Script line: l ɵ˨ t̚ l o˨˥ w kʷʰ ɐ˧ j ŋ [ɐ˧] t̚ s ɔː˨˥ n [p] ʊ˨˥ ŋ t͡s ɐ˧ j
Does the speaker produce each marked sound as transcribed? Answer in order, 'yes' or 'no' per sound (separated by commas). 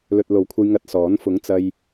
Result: yes, no